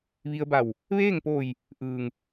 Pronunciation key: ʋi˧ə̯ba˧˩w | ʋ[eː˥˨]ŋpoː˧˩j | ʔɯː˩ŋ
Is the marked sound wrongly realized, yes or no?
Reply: no